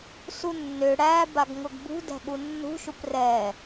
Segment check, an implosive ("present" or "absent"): present